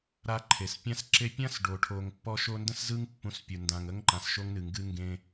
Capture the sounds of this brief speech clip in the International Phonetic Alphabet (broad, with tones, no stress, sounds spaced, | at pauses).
ɾ a˧ ǃʰ e˩ s pʲ ã˧ s ǁ e˧ pʲ ã˥ s ɖ o˩ ʈʰ o˩ ŋ pː ɔ˧ ʃ o˧ n d ə̃˥ s z ɯ˥ ŋ pː ũ˧ s pʲ u˩ n d ã˩ ŋ ə˥ ŋ ǃ ã˩ s ʃ o˧ ŋ n ɨ˩ ŋ ɡ ɨ˧ ŋ ɡ ẽ˧